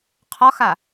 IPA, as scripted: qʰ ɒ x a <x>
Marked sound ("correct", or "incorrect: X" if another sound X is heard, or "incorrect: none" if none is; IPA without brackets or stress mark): incorrect: none